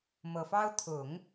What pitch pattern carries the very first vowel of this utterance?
low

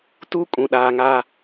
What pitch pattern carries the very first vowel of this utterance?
high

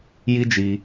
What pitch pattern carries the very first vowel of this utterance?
high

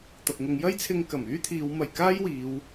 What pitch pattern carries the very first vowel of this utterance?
low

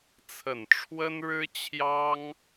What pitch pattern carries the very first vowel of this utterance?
low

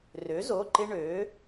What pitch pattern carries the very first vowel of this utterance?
rising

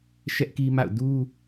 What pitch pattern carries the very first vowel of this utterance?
high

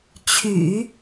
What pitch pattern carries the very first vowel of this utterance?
low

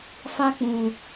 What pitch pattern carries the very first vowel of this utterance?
high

